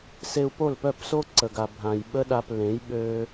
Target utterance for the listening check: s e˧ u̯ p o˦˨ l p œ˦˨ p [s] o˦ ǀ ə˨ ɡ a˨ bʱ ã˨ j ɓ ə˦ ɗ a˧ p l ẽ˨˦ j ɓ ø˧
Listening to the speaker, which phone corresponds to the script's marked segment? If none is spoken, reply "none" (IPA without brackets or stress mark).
s